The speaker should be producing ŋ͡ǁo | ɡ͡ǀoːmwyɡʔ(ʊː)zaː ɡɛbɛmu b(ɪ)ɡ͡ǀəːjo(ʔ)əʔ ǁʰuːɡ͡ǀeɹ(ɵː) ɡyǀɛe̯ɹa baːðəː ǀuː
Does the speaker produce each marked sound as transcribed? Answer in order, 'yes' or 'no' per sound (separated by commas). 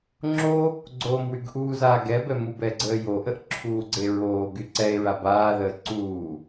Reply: no, no, yes, no